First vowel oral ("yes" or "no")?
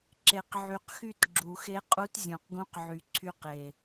yes